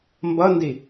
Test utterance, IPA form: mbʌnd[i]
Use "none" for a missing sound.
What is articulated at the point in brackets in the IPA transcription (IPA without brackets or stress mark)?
i